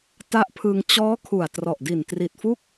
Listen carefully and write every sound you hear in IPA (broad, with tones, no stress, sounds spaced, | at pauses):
t a˦˥ ʔ pʰ ɯː˧ ŋ t͡ɕ ɔː˦˥ kʰ u˨˩ a̯ t r ɔ˨˩ ʔ d i˨˩ n t r i˨˩ t̚ f u˥˩ k̚